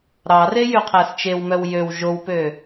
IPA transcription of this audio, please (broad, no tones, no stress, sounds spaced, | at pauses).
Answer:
ɾ ɑ r e j y qʰ æ s t͡ʃ e w m œ w j ø w ʒ o w p ø